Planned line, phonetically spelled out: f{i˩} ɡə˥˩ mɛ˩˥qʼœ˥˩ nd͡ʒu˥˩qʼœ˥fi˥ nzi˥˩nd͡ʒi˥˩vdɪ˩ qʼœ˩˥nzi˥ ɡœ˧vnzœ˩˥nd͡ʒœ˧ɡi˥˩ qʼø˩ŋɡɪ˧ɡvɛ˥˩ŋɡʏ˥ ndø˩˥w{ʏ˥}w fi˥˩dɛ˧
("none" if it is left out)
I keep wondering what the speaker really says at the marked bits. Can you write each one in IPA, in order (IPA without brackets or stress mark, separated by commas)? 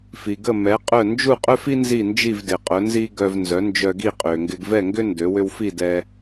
i˩, ʏ˥